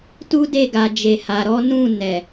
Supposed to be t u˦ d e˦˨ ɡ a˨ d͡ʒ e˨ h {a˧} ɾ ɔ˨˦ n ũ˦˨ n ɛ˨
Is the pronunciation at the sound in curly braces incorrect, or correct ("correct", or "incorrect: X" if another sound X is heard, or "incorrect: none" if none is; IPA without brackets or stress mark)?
incorrect: a˨